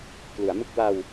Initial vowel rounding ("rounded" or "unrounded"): rounded